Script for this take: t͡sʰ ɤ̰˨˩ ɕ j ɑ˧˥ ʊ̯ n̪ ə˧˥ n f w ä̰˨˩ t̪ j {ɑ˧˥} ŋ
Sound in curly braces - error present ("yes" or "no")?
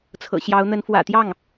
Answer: yes